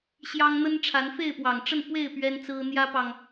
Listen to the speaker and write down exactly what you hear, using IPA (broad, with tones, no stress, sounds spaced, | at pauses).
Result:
ɕ j ɑ˦ ŋ n̪ ə˦ n ʈ͡ʂʰ a˨˦ n f e˥˨ ɪ̯ p w ɑ˨˩ ŋ ʈ͡ʂ ə˥˨ n f w e˥˨ ɪ̯ p ɥ ɛ˦ n t͡s ɹ̩˦ n̪ j ä˦ p ɑ˨ ŋ